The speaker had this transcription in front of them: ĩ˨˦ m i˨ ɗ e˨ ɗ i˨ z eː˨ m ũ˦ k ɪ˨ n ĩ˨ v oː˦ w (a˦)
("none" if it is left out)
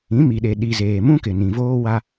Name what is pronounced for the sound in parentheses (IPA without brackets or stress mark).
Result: a˦